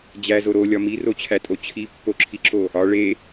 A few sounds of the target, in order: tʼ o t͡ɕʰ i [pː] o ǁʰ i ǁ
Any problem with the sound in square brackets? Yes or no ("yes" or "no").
no